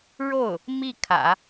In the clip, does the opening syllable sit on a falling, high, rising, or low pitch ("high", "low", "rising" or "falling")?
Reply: falling